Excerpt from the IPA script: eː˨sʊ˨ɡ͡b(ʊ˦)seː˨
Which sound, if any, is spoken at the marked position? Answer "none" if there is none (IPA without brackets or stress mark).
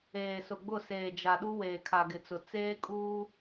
ʊ˦˨